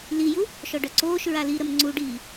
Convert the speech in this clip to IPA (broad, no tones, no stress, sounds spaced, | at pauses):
l i j u | ʃ ɔ ɖ œ ǀ oː ʃ ɹ a l i ɾ ə m ŋ͡ǀ u ɖ iː